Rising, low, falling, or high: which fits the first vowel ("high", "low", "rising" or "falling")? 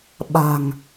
low